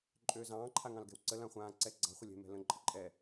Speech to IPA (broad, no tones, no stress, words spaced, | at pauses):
ǃʼøːzɑ̃ː ǃʰaŋɑ̃lɡɛ̤wǀə lãχʷãː ǀɛɡ͡ǀɑ̤ χʷɪlʲɛ̤ mɛ̤lə̃ ǃʼəǃʼɛ